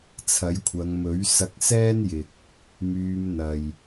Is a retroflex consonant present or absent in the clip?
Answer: absent